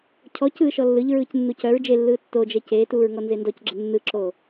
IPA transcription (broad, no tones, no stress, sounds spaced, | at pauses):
cʰ ɔ c ɯː ʃ ɔ lː ɯ ʎ ɹ ɯː c nː u c œ ɹ d͡ʒ e lː ɯː tː o d͡ʒ ɛ c eː t uː ɹ ŋ ɔ n z e n d ɔ c ɡ͡ǁ ə nː ɯ ǁ o